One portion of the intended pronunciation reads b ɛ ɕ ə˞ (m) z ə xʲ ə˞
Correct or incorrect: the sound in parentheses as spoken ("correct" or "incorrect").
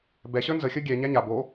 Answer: incorrect